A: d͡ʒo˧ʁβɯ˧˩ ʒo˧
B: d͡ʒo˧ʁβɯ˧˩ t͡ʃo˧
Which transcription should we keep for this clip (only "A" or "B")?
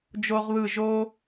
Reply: A